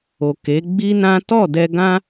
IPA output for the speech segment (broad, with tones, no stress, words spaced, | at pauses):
o˨ke˨˦ ɡ͡bi˦nã˦ tɔ˦˨ dɛ˧ɡã˦